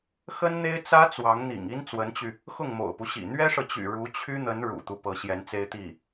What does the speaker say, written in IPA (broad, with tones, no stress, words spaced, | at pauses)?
xə˥nn̪e˥ɪ̯t͡sä˥ t͡swɑ˧˥ŋn̪ḭ˨˩ŋ i˥n t͡swə˧˥nt͡ɕy˧ | xʊ˥˩ŋmo̰˨˩ʊ̯pu˦ɕḭ˨˩ n̪ɥɛ˥ʂɤ˨t͡ɕy̰˨˩ ɻu˧˥t͡ɕʰy˥n̪ə˧˥n ɻṵ˨˩t̪u˦ pɤ˧˥ɕjɛ˧˥nt͡se˥ɪ̯t̪i˥˩